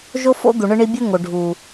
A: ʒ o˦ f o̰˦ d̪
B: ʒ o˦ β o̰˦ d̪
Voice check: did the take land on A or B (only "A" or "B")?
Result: A